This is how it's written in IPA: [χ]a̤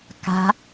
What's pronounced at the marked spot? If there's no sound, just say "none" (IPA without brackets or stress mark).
k